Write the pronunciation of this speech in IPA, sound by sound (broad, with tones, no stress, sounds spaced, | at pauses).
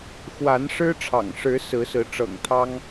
x w a˨˦ n ʂ ɻ̩˦ ʈ͡ʂʰ ɑ̰˨˩ ŋ ʂ ɻ̩˨˦ s ɹ̩˨˦ s ɹ̩˨˦ ʈ͡ʂ ɤ̰˨˩ ŋ t̪ʰ ɑ˦ ŋ